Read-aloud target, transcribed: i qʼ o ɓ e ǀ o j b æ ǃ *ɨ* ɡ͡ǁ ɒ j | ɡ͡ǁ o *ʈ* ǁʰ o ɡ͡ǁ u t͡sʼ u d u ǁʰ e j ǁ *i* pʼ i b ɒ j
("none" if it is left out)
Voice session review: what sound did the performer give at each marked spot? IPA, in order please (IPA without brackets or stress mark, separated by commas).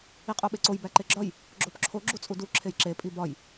e, p, e